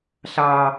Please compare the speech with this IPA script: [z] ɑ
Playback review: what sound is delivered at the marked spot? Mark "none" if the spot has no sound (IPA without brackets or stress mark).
ɬ